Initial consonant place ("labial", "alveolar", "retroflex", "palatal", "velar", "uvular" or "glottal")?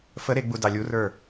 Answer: labial